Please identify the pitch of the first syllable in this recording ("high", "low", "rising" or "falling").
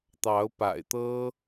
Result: rising